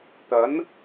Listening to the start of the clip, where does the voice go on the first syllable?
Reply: rising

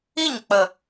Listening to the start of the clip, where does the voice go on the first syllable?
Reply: falling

